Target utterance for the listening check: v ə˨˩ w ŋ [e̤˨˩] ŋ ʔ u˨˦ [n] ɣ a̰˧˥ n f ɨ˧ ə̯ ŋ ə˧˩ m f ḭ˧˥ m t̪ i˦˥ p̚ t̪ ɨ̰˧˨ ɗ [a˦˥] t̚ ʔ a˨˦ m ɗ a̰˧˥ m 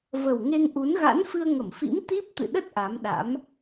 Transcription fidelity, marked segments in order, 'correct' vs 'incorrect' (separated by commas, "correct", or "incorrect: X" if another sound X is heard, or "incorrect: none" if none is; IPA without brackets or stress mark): incorrect: e˧, correct, incorrect: ə˦˥